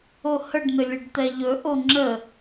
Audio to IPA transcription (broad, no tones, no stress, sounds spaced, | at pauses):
o h ə ɖ n̪ ɘ lʲ ɘ ɖ t̪ ɛ ʎ ɵ ʔ o ŋ͡ǁ ə